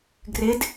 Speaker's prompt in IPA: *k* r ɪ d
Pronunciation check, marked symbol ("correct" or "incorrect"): incorrect